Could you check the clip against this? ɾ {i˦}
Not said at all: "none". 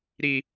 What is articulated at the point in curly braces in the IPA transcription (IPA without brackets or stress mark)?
i˦